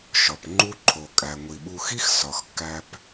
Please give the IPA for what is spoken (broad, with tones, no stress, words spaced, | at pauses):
ʃɒ˩pŋ͡ǃu˥ǃʰo˩ kʼæ˩ŋʷi˩ɓu˨xi˥x sɒ˩xkːæ˨p